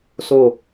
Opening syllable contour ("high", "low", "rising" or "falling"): falling